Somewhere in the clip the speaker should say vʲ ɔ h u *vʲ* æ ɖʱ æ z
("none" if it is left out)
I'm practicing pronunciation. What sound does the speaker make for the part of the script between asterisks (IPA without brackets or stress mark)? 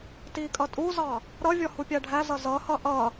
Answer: pʲ